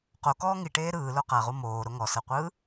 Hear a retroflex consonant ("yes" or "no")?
yes